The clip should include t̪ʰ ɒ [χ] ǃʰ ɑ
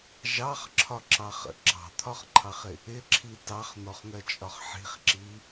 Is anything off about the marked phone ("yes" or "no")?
no